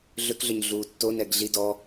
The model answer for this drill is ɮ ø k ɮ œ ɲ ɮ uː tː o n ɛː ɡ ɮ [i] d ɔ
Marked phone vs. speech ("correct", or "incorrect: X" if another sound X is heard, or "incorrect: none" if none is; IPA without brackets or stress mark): correct